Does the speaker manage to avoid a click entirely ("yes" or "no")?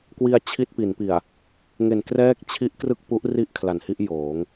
yes